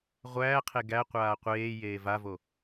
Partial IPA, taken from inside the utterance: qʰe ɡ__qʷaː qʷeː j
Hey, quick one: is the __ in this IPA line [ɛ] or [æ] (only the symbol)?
æ